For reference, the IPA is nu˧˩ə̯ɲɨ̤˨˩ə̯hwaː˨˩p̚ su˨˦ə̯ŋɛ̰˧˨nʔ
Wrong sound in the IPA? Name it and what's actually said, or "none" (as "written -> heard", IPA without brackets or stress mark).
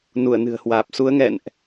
ɲ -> n